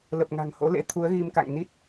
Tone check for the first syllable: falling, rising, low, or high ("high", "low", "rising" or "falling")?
low